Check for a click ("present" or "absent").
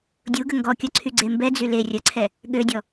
present